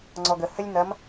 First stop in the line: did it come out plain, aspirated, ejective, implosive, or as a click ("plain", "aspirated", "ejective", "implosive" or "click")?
click